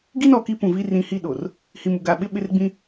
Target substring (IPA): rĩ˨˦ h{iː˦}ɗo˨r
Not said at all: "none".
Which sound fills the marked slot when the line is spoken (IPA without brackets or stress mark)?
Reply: i˦